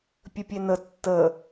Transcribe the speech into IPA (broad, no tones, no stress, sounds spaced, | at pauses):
pʲ ə pʲ e n ə tː ə